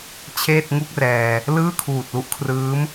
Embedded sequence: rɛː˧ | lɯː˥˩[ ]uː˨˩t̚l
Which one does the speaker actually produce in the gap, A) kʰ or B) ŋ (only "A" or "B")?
A